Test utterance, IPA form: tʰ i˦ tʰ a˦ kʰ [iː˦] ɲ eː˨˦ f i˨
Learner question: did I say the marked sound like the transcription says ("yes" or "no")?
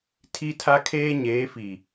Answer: no